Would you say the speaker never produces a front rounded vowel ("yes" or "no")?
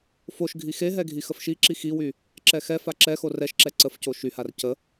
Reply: no